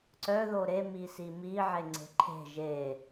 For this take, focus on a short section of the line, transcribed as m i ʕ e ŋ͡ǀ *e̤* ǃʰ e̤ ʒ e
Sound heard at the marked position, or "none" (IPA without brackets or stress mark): e̤